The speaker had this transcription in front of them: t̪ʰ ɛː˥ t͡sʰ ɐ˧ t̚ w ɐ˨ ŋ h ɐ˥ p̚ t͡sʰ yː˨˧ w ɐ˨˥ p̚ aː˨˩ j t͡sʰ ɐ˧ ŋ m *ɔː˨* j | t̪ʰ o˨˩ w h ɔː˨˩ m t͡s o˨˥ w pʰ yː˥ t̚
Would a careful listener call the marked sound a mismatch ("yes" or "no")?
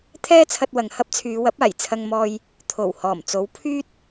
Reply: yes